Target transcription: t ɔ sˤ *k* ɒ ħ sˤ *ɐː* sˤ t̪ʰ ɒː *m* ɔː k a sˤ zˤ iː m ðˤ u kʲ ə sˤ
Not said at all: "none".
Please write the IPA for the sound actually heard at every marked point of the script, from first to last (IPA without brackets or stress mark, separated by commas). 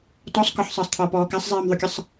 k, əː, p